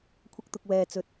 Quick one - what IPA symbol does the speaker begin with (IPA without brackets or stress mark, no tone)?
kʷʰ